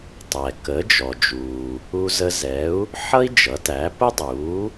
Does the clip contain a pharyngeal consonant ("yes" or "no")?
yes